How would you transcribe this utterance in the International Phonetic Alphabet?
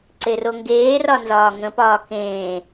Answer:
ǀeroŋɡeːrɒ nzɒːŋə̃pɒː kẽː

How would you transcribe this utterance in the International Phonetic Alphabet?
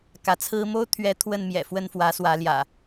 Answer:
kä˨˦t͡sʰɹ̩˦ mo˦ʊ̯t̪ʰɥɛ˨˦ t̪ʰwə˥˨nmjɛ̰˨˩ fwə˥˨nfwä˨˦swä˨˦ljä̰˨˩

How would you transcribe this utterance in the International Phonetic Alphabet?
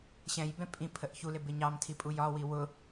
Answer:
ɕɛ̃jbɛ̃ pʼĩ pʰəʔçulɪ bɪɲɑmtʰi pʼujɒwi wʊ

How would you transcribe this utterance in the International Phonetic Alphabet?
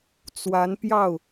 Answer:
t͡swa˧˥npjɑ˥˩ʊ̯

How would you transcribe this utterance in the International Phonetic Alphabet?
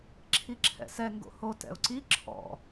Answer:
ǁʰiǁʰɛ̰sɛ ŋɡo̰ho tɛ̰ʊ̯ǀi ǁʰɔ̰

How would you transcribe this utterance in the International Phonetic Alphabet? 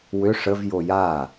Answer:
wʏ ʂəv joja

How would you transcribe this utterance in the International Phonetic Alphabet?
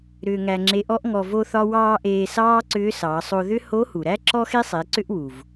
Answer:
ɾʏː˧ŋæ˧ŋ͡ǁe˧˥ʔɔ˥ʔ ŋɔ˧vo˥θɒ˥ wɑː˧ ʔeː˧sɑː˥ ǀʏː˧˥sɑː˩˧sˤo˧ ðʏ˥ ho˧˥hu˩ɾæ˥ ǁɔ˥xe˥sˤe˩˧ ǀʏ˥ʔwu˩v

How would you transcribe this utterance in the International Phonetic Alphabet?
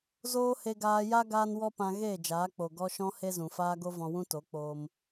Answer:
zoː˦he˧ ɡaː˧ja˦ ɡaː˦nwɔ˦pã˧ ɣeː˦˨d͡ʒaː˨˦k͡po˨ ɡɔ˧ ʃɔ̃˦he˦ zũ˨faː˦ ɡo˦vɔ̃˧wũ˦ to˨˦k͡poː˧m

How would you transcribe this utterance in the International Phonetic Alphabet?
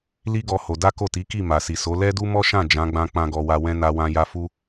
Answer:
li˦ ɡɔ˦ho˧ da˦ko˦˨ ti˨˦ki˦˨ ma˨si˨so˨˦ lɛ˦du˦mɔ˦ʃã˦˨ d͡ʒã˨˦ɡ͡bã˧ k͡pã˦ɡɔ˧wa˧wɛ̃˦ na˧wã˧ja˧fu˦

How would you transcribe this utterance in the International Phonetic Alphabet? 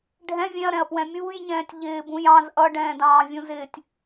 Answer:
ɖʱɛ̃ vʲɛ̃ɐ̯ɾɛ̃ɐ̯ pwɛ̃mʲuːjɲɛ̃ːtʲ ʎɪːbũj ɑ̃z ʔʌɖɛ̃ːdɑ̃ː vʲũzɪːtʲ

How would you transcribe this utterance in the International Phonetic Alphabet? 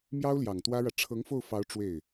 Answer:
mjɑ˥ʊ̯ljɑ˨˩ŋt̪wä˥ɻä˨ ʈ͡ʂʰɤ˧˥ŋ fo˥˩ʊ̯fɑ˧˥ʊ̯ ʈ͡ʂwe˥˩ɪ̯

